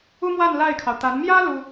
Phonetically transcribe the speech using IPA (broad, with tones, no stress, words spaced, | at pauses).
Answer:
u˥mwa˥˧n la˥˩ɪ̯kʰɑ˩ʊ̯ t̪a˧˥n mjä˥ lu˥